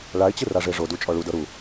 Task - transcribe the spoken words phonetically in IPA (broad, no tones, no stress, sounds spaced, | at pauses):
ɭ a ɪ̯ t͡ɕ ɯ r a ʐ e ʐ o d u t͡ʃʼ ɔ ɭ u d ɤ ɾ u